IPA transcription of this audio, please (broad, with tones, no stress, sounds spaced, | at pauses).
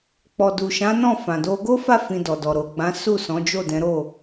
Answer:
k͡p ɔ˨ d u˨ ʃ ã˨˦ n ɔ̃˦˨ f ã˨ d o˧ ɡ o˦ f a˦˨ f ĩ˧ d ɔ˨ d ɔ˨ ɾ o˨ ɡ͡b ã˨˦ s u˦˨ s ɔ̃˨˦ d͡ʒ o˦˨ d ɛ̃˨˦ ɾ o˦˨